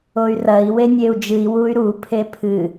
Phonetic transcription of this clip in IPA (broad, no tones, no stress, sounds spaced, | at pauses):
o y̯ r ɐ i̯ w e nʲ e u̯ d͡ʒ ɨ i̯ w u y̯ ɾ u pʰ e pʰ ɨ